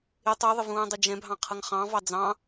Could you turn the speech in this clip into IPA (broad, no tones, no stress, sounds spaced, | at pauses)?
ɪ tˤ ə˞ ðˤ ɪ v ũː dˤ ə d͡ʒ ɛ̃ bʱ ɑ̃ qʰ ʌ ŋ χ ɑ̃ v ɑ d͡z ɑ̃